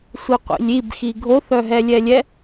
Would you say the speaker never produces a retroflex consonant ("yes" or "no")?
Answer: yes